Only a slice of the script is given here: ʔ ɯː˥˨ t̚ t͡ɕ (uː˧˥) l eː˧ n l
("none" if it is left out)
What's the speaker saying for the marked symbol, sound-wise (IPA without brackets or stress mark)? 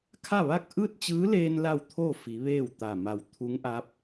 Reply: ɯː˧˥